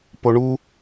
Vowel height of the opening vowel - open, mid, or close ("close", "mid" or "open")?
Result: mid